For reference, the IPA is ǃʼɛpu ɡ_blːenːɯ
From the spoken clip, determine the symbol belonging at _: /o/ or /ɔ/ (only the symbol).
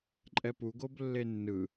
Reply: o